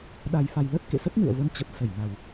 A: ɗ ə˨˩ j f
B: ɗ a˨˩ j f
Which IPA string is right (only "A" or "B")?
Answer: B